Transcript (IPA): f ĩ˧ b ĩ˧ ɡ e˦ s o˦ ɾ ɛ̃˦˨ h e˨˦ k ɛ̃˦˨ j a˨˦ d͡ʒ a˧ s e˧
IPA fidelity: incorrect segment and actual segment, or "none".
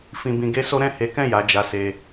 none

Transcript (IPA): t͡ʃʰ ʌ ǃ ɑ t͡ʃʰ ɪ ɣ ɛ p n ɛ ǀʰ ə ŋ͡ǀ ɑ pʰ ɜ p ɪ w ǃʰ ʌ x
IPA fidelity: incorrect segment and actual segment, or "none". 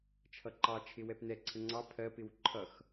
ɣ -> w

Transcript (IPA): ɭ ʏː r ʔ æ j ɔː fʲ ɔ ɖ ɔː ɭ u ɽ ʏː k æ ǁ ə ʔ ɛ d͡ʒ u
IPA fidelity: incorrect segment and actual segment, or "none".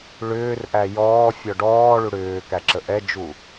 none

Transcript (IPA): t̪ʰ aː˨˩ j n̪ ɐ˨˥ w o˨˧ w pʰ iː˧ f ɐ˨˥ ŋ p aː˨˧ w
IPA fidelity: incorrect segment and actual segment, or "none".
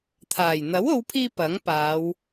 f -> p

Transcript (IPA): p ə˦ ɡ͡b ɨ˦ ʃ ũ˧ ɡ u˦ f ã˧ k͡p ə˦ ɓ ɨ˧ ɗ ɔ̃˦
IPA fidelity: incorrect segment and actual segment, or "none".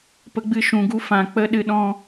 ɓ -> ɗ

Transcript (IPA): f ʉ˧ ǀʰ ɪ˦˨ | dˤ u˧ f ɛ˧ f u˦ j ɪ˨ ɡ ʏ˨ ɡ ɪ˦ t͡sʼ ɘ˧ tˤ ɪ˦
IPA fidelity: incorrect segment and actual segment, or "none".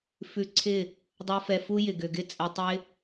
none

